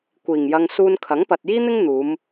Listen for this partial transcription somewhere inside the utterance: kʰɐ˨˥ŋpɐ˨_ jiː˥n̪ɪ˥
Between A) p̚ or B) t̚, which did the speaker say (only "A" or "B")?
B